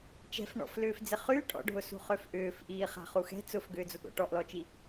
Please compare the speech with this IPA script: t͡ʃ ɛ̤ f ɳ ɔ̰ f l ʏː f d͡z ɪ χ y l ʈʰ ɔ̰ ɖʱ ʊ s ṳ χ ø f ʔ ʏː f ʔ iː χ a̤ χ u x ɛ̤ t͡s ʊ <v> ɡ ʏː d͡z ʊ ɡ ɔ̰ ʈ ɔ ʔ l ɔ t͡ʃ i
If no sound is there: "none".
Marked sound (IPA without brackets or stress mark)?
f